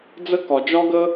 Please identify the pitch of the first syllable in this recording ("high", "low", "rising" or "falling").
high